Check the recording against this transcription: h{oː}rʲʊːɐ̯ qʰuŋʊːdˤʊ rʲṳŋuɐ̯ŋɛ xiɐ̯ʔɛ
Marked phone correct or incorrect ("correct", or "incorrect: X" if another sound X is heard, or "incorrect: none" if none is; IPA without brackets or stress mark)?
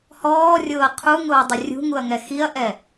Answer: incorrect: ɔː